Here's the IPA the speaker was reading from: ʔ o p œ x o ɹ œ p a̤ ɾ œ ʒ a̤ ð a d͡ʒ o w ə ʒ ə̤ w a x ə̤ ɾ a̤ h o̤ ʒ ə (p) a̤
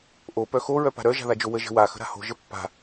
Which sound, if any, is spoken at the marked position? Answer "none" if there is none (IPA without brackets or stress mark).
pː